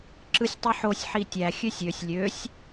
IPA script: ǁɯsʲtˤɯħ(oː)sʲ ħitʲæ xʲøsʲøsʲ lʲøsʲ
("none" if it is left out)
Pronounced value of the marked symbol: o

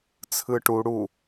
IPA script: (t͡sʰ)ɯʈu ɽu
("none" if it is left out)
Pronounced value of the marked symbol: t͡sʰ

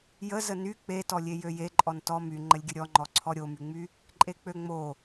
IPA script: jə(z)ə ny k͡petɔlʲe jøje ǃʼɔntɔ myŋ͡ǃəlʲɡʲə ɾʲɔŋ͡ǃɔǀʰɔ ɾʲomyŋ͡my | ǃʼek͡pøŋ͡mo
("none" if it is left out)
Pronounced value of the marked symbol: z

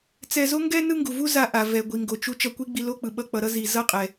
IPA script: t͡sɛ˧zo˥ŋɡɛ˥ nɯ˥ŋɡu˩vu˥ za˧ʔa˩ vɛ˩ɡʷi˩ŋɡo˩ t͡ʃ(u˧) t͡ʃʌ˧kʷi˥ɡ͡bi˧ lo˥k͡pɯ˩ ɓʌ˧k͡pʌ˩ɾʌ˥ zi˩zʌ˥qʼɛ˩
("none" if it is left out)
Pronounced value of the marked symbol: u˧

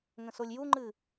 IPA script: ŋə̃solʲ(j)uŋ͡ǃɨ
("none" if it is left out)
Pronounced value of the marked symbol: j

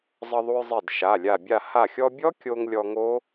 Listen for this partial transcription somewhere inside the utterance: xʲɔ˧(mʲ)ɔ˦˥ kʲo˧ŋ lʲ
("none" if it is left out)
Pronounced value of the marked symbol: bʲ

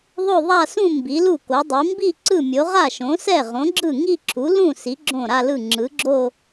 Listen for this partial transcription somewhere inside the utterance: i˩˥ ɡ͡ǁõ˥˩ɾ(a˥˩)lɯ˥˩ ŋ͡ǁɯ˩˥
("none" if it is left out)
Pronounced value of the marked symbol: a˥˧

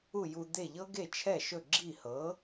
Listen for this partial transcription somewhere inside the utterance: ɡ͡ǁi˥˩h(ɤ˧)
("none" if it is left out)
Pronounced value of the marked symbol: ɤ˩˥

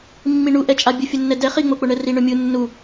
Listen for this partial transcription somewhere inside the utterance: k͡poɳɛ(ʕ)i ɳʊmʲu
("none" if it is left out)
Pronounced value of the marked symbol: r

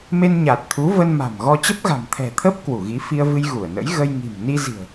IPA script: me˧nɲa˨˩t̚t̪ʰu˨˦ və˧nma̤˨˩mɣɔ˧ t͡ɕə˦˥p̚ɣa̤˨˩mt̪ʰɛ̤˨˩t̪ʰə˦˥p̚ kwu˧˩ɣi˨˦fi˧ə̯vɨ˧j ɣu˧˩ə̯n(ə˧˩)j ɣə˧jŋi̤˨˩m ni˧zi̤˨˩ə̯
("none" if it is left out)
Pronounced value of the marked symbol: ə̰˧˥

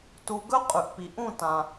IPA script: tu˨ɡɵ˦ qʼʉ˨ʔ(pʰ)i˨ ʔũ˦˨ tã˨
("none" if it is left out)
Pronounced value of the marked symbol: p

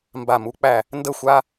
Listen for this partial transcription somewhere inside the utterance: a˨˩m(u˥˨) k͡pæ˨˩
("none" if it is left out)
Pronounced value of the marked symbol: u˩˧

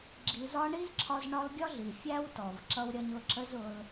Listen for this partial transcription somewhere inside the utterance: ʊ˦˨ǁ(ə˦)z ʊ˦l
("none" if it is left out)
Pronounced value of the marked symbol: ə˦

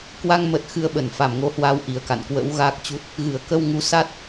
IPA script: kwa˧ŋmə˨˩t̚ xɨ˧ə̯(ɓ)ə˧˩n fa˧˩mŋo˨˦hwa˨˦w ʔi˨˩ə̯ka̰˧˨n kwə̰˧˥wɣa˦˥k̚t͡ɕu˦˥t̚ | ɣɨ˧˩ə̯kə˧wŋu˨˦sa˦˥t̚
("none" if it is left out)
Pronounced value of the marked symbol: ɓ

